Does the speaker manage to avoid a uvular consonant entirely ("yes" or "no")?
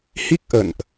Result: yes